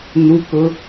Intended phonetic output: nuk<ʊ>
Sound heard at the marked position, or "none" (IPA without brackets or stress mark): ʊ